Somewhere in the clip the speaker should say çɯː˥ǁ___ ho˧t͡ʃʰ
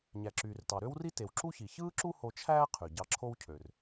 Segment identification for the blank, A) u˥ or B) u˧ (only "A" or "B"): A